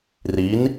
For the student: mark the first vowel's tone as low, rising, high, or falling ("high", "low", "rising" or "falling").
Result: rising